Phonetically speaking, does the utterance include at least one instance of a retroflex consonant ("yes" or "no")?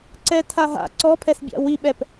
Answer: no